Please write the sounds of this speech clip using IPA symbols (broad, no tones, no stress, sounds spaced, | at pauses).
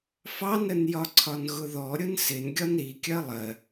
f ɑ n ɾ ə n j ɒ ǀʰ ɒ n ɣ ʊ ð ɔ ɾʲ ʊ n s ɪ n ɡʲ ɒ n ɾ i kʲ ɜ lˠ ɜ